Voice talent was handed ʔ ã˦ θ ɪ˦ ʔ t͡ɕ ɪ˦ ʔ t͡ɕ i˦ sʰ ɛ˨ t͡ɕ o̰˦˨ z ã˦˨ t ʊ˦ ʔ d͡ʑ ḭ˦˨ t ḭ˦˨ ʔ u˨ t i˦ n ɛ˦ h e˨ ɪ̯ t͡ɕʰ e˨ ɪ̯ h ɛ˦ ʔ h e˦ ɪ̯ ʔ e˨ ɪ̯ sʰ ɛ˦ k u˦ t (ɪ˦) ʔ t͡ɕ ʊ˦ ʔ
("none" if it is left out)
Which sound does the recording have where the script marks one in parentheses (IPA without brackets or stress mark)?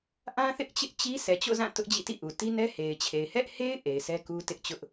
ɪ˦